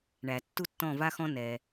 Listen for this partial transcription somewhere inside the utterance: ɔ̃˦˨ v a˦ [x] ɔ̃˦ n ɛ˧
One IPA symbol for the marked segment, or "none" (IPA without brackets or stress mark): x